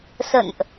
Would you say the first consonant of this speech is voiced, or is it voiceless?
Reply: voiceless